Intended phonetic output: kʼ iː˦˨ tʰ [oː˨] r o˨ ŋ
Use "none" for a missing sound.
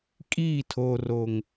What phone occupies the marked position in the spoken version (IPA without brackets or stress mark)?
oː˨